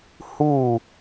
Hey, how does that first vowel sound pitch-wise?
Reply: falling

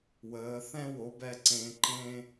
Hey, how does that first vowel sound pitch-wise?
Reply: rising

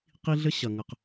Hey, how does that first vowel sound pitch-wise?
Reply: high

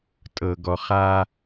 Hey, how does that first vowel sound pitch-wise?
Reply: low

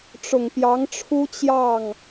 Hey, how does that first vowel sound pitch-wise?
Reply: low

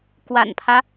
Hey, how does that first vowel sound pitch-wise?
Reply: low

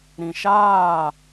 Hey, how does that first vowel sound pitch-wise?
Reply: low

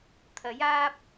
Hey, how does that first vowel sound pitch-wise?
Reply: rising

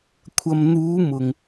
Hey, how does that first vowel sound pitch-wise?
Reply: low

